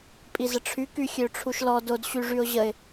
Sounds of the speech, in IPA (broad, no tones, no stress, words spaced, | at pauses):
pʼizəʈ͡ʂʰy kyxʲøʈ͡ʂʰuʃlɔ dod ɕyʐyʊ̯ʑəɪ̯